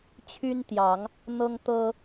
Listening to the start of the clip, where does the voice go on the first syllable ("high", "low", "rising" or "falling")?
high